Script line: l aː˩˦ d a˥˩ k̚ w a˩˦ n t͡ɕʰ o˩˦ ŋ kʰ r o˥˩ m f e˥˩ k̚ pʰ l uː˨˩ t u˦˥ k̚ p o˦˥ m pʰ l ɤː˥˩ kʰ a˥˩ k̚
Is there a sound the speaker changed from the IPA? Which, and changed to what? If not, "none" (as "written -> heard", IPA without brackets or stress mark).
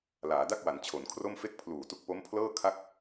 ŋ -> n